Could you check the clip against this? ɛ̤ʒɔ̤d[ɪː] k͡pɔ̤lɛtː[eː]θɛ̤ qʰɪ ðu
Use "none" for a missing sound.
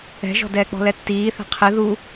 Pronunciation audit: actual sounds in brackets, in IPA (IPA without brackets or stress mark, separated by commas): ɛː, iː